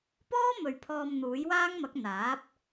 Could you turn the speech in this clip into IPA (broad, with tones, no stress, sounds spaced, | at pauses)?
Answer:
p ɔː˥ m ɵ˨ ɥ pʰ ɔː˧ m n̪ uː˨˥ j w aː˥ ŋ m ɐ˨˥ k̚ n̪ aː˨˥ p̚